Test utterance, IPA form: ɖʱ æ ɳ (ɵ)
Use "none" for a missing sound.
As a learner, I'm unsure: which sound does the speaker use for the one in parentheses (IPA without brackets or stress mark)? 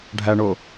o